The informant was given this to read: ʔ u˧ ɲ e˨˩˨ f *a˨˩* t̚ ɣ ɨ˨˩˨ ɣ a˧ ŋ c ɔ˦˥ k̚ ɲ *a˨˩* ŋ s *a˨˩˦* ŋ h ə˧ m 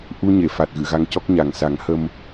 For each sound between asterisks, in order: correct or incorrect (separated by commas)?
correct, correct, correct